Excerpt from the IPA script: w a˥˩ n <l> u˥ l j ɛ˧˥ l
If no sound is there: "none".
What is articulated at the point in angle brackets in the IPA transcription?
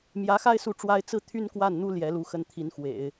n̪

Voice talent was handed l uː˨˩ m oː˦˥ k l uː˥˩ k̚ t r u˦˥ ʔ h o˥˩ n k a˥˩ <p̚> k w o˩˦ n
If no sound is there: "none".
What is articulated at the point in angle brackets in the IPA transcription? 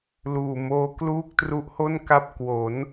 p̚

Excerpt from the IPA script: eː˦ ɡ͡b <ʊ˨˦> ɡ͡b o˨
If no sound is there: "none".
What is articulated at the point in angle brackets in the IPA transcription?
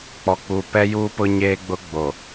ʊ˦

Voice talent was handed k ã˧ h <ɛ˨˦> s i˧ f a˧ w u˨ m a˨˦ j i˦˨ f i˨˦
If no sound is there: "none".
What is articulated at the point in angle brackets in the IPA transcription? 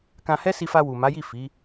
ɛ˦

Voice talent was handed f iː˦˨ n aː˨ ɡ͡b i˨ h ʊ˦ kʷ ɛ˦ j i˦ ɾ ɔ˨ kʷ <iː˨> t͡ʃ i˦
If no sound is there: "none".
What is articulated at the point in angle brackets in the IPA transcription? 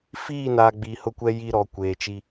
eː˨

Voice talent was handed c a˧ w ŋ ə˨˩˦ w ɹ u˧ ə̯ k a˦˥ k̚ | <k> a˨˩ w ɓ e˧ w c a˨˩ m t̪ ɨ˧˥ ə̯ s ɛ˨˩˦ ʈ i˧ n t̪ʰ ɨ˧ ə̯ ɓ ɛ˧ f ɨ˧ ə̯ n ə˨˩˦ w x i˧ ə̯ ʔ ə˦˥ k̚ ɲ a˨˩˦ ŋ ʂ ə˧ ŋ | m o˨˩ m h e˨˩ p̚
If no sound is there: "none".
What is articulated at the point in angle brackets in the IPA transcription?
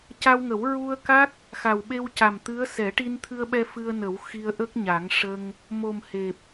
x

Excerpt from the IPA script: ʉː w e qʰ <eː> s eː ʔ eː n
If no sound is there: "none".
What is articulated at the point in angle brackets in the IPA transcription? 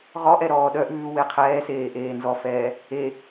ɛː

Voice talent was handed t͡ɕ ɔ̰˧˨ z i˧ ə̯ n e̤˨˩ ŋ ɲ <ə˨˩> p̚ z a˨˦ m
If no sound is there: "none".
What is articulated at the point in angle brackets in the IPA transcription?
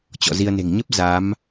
ə˦˥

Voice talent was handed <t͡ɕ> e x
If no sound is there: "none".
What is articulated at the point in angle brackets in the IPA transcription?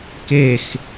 k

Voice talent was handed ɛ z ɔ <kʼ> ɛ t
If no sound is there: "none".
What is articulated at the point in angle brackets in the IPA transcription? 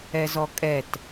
kʼ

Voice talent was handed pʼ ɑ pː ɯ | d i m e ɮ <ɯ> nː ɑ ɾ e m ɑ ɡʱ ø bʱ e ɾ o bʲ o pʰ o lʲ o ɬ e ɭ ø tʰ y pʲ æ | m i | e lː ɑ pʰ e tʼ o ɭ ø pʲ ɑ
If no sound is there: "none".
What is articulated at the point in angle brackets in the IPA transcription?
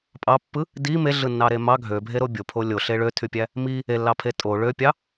ɯ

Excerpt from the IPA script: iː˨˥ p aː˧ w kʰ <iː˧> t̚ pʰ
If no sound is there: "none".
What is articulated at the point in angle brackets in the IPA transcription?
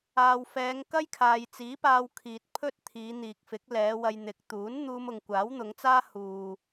iː˨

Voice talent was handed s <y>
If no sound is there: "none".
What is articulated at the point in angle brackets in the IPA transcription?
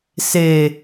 e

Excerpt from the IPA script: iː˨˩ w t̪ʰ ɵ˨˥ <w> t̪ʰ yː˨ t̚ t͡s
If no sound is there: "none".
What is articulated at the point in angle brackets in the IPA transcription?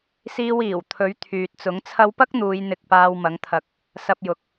ɥ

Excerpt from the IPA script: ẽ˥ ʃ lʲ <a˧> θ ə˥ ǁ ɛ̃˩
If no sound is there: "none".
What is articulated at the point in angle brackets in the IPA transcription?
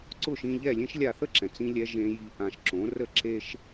a˥˩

